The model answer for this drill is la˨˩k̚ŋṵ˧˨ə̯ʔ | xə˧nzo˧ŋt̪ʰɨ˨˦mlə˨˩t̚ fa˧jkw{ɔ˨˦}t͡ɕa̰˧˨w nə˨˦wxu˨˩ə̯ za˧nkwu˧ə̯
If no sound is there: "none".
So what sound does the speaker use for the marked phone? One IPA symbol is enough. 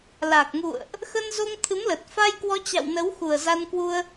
ɔ˨˦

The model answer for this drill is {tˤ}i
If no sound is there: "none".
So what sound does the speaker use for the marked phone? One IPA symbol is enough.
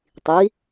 tˤ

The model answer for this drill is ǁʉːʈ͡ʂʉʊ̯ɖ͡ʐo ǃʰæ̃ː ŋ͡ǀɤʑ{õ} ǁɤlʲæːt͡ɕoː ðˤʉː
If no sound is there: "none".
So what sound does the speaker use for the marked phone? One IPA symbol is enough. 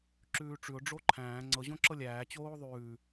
õ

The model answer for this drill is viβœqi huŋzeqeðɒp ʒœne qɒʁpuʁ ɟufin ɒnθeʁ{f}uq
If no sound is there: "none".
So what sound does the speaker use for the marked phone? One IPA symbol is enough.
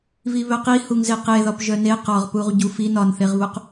β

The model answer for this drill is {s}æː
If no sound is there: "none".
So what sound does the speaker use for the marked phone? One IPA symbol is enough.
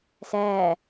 s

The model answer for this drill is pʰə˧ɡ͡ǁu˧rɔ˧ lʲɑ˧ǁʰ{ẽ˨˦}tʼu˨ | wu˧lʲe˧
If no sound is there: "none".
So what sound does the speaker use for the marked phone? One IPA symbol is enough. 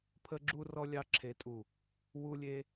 e˨˦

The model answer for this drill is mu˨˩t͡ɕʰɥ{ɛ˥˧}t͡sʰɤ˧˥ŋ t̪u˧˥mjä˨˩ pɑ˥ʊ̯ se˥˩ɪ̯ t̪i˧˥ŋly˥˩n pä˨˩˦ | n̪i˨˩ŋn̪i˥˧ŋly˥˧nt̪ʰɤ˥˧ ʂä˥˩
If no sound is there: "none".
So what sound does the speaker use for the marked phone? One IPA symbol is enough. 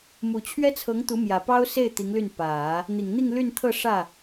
ɛ˥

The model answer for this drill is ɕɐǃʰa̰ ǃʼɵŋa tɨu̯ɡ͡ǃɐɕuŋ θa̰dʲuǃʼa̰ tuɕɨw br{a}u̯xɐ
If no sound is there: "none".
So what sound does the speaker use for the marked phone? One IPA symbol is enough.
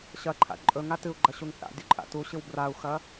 a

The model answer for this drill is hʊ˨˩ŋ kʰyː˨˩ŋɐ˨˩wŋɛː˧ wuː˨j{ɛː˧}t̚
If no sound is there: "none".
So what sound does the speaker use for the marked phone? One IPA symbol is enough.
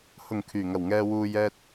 ɛː˧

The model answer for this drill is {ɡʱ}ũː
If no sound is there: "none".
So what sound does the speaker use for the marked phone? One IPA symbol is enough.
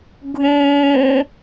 ɡʱ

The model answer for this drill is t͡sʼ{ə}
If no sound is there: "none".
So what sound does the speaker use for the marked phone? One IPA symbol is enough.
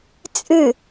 ɨ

